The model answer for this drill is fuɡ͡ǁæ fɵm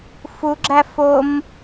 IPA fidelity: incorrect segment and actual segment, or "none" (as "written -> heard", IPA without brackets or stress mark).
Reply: ɵ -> o